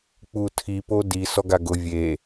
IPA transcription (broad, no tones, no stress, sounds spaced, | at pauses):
k͡p u tʰ i p o d i s ɔ ɡ a ɡ ʊ vʲ e